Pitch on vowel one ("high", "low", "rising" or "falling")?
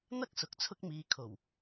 high